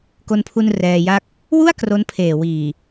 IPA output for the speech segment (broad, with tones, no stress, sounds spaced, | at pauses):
k o˧ n pʰ u˧ n r ɛː˧ j a˥˩ k̚ | w u˥˩ a̯ k r o˦˥ n pʰ eː˨˩ w iː˨˩